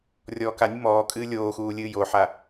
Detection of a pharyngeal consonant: present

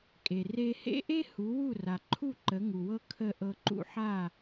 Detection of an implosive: absent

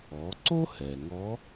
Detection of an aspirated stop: absent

